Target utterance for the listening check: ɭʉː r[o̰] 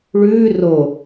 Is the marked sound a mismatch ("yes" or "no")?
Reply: yes